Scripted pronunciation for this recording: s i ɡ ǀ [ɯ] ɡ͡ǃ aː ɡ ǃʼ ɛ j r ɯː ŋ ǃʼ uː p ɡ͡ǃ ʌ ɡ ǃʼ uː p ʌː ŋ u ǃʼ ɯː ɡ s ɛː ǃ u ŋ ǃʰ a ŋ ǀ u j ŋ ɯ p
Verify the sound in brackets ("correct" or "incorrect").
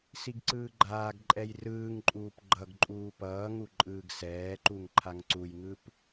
incorrect